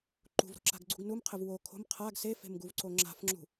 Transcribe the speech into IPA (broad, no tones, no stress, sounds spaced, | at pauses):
ǃ ṳ v ɾ o̤ ǁ a̤ ɡ ɡ͡ǀ ṳ ɡ n u m qʰ ɘ v w o kʰ o̤ m qʰ a ɡ s e f e̤ m ɡ u v ǀ o ŋ͡ǁ a̤ f ŋ͡ǁ ṳ